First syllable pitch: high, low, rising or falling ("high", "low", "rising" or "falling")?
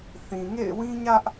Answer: low